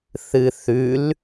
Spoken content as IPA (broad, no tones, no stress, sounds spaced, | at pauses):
θ ɨ θ ʉ l